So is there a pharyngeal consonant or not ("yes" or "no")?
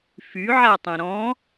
yes